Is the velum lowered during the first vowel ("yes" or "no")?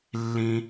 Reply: yes